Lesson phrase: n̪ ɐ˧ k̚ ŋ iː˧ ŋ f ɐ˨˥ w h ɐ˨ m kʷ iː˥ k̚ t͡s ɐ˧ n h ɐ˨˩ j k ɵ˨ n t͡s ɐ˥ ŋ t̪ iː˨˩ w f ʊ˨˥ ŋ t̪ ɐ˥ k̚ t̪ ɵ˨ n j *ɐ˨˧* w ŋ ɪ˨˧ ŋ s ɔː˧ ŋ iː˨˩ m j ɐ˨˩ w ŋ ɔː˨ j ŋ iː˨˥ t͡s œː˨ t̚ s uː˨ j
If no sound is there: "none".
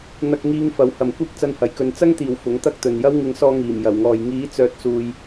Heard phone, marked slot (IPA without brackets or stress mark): ɐ˥